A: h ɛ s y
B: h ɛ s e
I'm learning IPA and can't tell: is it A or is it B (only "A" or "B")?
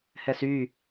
A